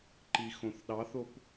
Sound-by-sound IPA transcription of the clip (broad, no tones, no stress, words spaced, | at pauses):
ǃixõθɗɑθop